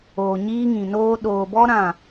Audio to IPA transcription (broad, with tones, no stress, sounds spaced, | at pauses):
oː˨ ɲ iː˦ ŋ ĩ˨ n oː˦ ɗ oː˨ b ɔ˦ ɾ ã˦˨